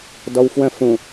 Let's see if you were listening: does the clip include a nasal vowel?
yes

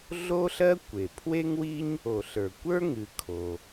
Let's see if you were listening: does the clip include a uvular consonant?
no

